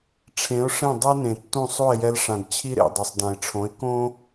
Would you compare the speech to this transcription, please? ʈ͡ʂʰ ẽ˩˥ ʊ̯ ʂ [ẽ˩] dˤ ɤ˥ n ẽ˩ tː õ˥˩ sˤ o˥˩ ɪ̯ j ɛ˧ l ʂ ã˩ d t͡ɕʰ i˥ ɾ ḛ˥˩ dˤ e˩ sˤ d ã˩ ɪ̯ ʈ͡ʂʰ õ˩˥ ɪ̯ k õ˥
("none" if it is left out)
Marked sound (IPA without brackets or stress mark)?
ẽ˥˩